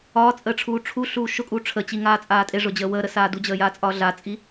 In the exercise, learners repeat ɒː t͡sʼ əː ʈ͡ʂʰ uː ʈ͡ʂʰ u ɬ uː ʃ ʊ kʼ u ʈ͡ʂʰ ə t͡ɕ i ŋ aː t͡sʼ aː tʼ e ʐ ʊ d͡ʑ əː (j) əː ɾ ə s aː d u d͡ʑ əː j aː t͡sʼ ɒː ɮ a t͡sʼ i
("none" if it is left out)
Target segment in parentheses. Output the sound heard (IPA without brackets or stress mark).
w